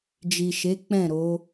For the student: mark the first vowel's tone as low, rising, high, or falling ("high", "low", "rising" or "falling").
low